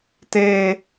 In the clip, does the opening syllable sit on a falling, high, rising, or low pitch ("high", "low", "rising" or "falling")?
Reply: high